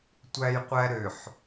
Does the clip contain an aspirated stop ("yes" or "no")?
no